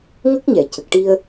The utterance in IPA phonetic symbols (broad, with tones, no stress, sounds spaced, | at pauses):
ŋ ə˦˥ k̚ ɲ ɛ˨˩˦ c ə˨˩ k̚ ʈ i˧ ə̯